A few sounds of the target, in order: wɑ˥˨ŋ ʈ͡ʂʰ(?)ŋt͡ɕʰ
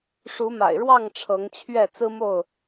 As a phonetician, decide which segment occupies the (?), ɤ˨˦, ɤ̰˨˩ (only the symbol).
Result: ɤ˨˦